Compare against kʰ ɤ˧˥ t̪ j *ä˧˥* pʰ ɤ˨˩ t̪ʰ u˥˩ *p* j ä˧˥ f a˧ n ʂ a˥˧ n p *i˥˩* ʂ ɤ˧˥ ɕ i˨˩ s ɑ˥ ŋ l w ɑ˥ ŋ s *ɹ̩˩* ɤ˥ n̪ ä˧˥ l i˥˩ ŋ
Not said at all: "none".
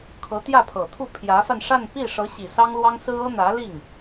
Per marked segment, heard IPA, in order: ä˥˩, pʰ, i˥˩, ɹ̩˥

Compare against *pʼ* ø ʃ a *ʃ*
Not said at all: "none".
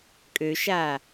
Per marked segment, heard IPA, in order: kʼ, none

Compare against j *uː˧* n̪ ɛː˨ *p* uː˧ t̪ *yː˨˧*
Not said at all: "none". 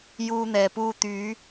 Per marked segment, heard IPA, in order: uː˧, p, yː˨˧

